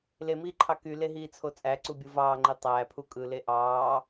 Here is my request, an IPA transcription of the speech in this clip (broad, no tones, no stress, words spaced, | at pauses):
lemiːǃʰɑ kyleɦiːt͡sʰo t͡sʼæǀubʲɯ vɑːŋ͡ǃi tˤæːpʰu kʼɯle ʔɑː